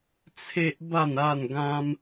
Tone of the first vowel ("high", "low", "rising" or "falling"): high